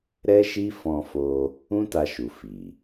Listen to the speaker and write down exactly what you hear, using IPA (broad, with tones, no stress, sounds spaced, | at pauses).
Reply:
ɾ ɛ˦ ʃ i˦ f ɔ̃˧ f o˧ | ũ˦ t a˧ ʃ u˨ f i˨